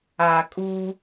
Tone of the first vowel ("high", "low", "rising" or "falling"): low